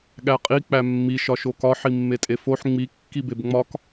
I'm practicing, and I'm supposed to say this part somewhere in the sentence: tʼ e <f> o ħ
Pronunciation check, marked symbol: correct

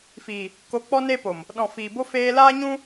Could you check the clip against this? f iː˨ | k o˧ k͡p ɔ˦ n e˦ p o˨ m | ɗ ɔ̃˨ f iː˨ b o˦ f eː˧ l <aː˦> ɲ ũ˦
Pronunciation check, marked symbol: correct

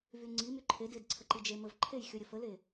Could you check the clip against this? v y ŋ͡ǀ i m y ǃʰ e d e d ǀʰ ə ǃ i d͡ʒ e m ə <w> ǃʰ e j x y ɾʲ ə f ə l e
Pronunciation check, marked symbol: incorrect: v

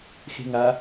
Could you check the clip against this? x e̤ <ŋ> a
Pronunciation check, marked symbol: correct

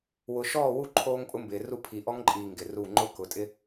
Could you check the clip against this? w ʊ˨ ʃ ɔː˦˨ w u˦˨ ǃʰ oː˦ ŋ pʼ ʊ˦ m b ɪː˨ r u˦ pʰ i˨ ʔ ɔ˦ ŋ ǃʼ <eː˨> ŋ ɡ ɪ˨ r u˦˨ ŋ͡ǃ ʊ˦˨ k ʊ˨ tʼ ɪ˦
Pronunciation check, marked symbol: incorrect: iː˨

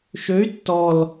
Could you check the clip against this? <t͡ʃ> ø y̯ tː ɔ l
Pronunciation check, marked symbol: incorrect: ʃ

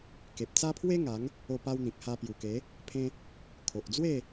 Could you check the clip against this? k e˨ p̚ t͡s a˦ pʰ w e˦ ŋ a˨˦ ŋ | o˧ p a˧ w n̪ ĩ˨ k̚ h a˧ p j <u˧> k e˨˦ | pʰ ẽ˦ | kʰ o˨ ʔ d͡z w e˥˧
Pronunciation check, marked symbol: incorrect: u˨˩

